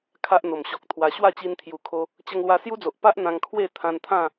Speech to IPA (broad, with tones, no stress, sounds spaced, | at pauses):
kʰ a˦ ʔ n̪ o˨˩ m ɕ ɔ˨ k̚ t̪ʰ w a˧ ɕ w a˥˧ t͡ɕ i˧ n t̪ʰ j u˨˩ kʰ o˧ | t͡ɕ ə˧ ŋ l w a˧ s j u˦ d͡z o˨ ʔ p a˦ ʔ n̪ ã˧ ŋ kʰ w e˥˧ t̪ʰ ã˧ n t̪ʰ ã˥˧